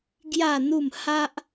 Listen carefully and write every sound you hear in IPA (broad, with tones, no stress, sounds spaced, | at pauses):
ɡ j a˥˧ n̪ u˥˧ m h a˦ ʔ